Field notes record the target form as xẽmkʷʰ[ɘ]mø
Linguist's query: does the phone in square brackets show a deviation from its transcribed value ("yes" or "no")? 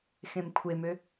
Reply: yes